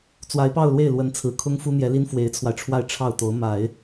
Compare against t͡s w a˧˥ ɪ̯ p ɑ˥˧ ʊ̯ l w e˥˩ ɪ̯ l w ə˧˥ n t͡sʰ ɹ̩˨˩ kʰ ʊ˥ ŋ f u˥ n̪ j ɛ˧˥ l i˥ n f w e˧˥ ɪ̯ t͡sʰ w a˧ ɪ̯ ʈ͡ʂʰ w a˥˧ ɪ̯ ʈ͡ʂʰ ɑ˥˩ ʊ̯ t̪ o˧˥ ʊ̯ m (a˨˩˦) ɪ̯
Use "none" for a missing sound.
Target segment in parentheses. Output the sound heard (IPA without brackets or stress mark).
a˨˩˦